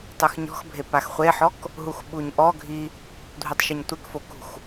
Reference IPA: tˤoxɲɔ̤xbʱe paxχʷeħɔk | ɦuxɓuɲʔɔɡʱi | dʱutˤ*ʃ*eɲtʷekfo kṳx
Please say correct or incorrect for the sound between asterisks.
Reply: correct